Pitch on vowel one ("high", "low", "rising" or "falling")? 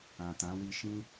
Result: low